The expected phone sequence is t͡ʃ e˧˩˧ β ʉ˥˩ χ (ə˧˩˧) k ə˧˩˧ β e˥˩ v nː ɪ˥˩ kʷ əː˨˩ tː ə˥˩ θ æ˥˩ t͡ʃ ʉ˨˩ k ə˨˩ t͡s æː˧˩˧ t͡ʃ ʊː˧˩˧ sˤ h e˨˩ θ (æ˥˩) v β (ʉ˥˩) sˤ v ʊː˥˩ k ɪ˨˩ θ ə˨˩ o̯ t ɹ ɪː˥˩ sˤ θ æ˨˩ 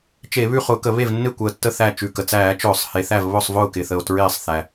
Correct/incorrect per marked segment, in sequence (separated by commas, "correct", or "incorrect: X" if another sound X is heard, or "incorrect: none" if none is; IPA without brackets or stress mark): incorrect: ʊ˧˩˧, correct, incorrect: ʊ˥˩